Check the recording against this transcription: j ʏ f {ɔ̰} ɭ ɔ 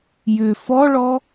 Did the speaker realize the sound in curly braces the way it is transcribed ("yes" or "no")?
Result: no